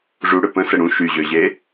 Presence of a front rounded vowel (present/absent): present